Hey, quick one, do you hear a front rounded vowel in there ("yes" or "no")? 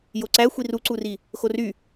yes